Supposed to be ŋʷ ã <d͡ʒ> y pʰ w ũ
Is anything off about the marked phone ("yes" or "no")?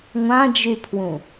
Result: no